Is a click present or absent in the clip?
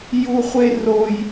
absent